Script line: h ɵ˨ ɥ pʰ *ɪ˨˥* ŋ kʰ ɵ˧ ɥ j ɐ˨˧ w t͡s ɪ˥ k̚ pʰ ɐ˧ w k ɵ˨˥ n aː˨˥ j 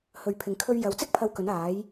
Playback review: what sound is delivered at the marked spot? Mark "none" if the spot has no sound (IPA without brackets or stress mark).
ɪ˨